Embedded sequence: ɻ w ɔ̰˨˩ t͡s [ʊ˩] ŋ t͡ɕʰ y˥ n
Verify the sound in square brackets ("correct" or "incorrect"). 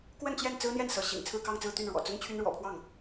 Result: incorrect